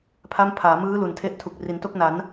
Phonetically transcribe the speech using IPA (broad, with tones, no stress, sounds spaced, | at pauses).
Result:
pʰ a˥˩ m pʰ aː˩˦ m ɯː˦˥ l u˨˩ n tʰ e˦˥ ʔ tʰ u˨˩ k̚ r i˩˦ n t o˥˩ k̚ n a˩˦ n